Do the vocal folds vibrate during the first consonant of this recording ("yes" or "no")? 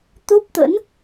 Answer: no